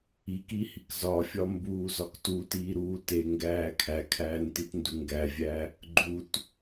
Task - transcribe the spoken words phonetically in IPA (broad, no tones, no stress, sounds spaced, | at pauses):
i k i h i k z ɒ fʲ ɒ m b uː z ɒ k t u t iː ɾ uː t e ŋ ɡ æː kʰ æ kʰ æː n t i t n d u ŋ ɡ æ vʲ æ | ɡ͡ǃ u t